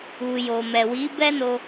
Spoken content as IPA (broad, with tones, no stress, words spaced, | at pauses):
u˨jo˨ mɛ˨wi˨˦bɛ˦no˧